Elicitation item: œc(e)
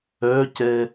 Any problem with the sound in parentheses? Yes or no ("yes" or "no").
yes